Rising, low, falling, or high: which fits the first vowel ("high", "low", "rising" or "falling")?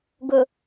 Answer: low